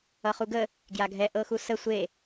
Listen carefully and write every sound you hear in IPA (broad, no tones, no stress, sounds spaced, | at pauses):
ʌ χ u ɡ ə | ɡ j a ɡʱ ɛ ʔ ɤ x u s ə sʷ e